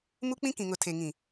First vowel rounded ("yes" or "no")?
yes